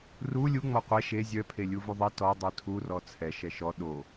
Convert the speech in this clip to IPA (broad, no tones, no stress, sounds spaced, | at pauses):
r u lʲ u ŋ͡m ɔ qʷ ɛ ʃ e zʲ œ pʰ e lʲ u v u ðˤ i t ɔ dˤ u tʰ u r ɔ t͡sʰ ɛ ʃ ɛ ʃ ɔ ɗ o